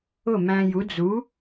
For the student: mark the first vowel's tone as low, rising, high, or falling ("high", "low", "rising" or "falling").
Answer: falling